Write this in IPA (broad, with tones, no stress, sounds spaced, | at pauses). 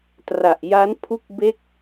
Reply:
t r a˨˩ ʔ j a˦˥ n pʰ u˥˩ k̚ b e˥˩ k̚